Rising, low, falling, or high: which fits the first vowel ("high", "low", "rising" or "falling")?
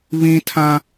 high